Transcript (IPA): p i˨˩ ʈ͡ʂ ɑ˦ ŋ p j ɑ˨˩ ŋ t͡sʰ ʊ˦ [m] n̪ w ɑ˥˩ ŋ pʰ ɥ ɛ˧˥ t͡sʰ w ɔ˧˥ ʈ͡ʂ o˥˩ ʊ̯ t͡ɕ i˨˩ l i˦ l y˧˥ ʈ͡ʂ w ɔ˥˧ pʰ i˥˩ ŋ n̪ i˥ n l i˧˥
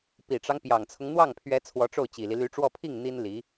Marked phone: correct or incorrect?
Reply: incorrect